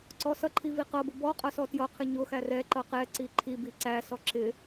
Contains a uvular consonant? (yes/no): yes